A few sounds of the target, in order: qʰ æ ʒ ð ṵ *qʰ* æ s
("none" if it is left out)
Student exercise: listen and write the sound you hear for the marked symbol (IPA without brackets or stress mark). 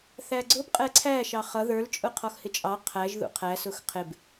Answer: qʰ